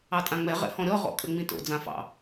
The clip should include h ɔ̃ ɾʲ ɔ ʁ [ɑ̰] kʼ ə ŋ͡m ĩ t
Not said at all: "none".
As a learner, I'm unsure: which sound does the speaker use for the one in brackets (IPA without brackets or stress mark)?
ɔ̰